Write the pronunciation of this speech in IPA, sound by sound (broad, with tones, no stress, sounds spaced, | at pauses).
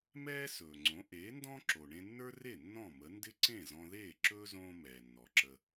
m ɛː˥ s ɵː˩ ŋ͡ǀ õ˩˥ ʔ eː˩˥ n d ɔ̃˥ ǁ o˩ ɳ ẽ˧ nː ə˞˥ r e˥˩ nː ɔ̃˥˩ m ə˩˥ n d ɪ˥ ǀ ẽ˥˩ z ɔ̃˧ ð eː˥˩ ǁ ɵː˥ z õː˥ m ɛː˩ nː ɔ˩ ǁ ə˧